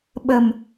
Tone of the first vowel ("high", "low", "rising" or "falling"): low